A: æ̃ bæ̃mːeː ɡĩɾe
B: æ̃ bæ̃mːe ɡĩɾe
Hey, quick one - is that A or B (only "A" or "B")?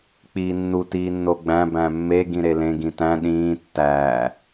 B